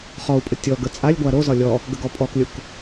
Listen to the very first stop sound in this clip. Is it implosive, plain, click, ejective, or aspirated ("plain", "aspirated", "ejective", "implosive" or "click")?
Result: ejective